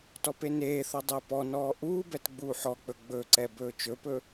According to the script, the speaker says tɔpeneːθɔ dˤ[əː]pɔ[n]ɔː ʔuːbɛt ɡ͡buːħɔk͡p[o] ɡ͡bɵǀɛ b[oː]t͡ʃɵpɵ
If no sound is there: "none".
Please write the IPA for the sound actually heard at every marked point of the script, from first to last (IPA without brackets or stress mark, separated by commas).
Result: əː, n, ɵ, ɵː